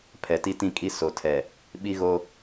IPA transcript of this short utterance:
pʰɛ˨ti˦tĩ˦kʼi˦ so˨tʰɛ˨ | ɓi˦ɣo˦

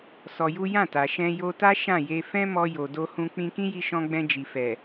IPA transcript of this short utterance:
sɔ˧ju˦ jã˦˨ta˨ ʃɛ̃˧ jo˧ta˦ ʃã˦˨je˧ fɛ̃˦mɔ˧ jo˨do˧hũ˧ k͡pĩ˧kĩ˦ji˧ʃɔ̃˧ ɡ͡bɛ̃˧d͡ʒi˨fɛ˨

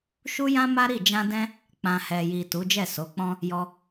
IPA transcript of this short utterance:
ʃu˦jã˦ma˦ɾi˦˨ d͡ʒã˧dɛ̃˧ | k͡pã˨hɛ˨ji˨ tu˨˦d͡ʒɛ˦˨so˨˦k͡pɔ̃˦ | jɔ˧

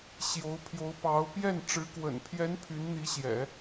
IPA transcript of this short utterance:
ɕjo˧˥ʊ̯pʰjo˧˥ʊ̯pɑ˧˥ʊ̯ pjɛ˥˩n ʈ͡ʂɻ̩˧˥kwə̰˨˩n pʰjɛ˧˥n pʰy˧˥nn̪i˧˥ɕjɛ̰˨˩˦

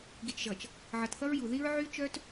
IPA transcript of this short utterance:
ɡi˨t͡ʃʒʌ˨t͡ʃ | ʕʌ˨tθʌ˦ɹju˨ ði˦ɹʕy˦ t͡ʃœ˦t

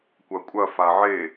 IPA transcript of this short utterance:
kʷɐkʷʼɐ faʕe

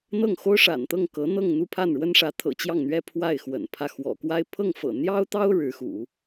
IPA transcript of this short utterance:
n̪ɤ˥˩ŋxo˥ʊ̯ʂa̰˨˩nt̪ɤ˥˩ŋ kɤ˧˥n̪ɤ˥˧ŋ n̪u˥˧pʰa˥˩nɻwə˥nʂä˧˥ t̪ʰɤ̰˨˩ t͡ɕjɑ˥˩ŋn̪ɥɛ˥ pʰwa˥˩ɪ̯xwə̰˨˩npʰä˥˩ xwɔ̰˨˩kwa˥ɪ̯ pʰɤ˥˩ŋfɤ̰˨˩n̪jɑ˥ʊ̯t̪ɑ˥ʊ̯ ɻɻ̩˧˥xṵ˨˩˦

